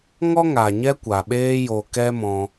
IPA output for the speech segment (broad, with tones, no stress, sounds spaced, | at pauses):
ŋ ɔ˦ ŋ a˨ ɲ ɛ˦ kʷ a˨ ɓ eː˦ j o˧ k ɛ˦ m ɔ̃˧